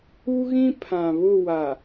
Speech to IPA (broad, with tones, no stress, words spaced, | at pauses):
u˦ɣĩ˦ pʰã˨ βʊ˦˨wa˨